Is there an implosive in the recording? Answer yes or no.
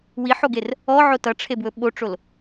yes